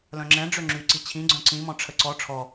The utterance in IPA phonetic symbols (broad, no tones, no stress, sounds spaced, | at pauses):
l œ̃ ŋ͡ǁ ɛ̃ ɖ͡ʐ ø ŋ͡ǁ y ǀ i t͡ɕʰ ĩ ɡ͡ǀ œ̃ ǀ ĩ m ɔ̃ ʈ͡ʂʰ ə ǀ ɔ ʈ͡ʂʰ ɔ